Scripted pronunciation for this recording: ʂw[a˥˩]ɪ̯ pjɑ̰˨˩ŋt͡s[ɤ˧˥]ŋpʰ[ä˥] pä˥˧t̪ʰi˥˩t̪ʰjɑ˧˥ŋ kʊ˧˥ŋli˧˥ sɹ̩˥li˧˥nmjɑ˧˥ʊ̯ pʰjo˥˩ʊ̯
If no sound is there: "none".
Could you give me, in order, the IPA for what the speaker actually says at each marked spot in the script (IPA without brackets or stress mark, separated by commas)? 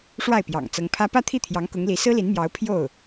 a˥˩, ɤ˧˥, ä˥